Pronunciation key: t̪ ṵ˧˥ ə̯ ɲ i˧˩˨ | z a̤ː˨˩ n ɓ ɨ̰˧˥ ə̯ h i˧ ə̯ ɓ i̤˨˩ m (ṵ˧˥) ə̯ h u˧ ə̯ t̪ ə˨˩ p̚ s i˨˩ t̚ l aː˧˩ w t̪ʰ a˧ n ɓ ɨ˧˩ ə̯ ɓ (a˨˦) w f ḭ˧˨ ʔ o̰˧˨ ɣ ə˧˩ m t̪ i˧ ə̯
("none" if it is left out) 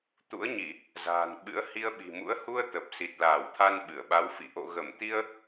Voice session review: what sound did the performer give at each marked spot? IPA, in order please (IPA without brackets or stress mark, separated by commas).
ṵ˧˥, a˨˦